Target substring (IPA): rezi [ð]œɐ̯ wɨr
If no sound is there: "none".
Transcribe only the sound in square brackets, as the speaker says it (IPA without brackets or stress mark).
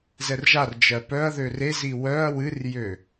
w